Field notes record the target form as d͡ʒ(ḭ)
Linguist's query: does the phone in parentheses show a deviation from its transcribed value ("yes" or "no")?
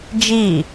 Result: yes